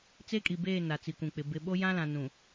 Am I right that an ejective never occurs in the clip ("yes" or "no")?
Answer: no